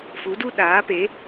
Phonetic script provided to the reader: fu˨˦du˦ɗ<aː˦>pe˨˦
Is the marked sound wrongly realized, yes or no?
yes